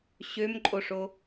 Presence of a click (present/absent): present